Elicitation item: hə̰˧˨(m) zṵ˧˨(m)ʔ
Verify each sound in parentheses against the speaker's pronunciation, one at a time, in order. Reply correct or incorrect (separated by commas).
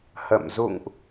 correct, incorrect